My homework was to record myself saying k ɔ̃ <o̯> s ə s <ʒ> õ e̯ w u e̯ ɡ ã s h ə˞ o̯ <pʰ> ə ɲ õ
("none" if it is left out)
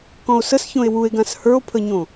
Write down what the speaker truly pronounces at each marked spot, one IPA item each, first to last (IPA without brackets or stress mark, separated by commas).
o̯, ç, pʰ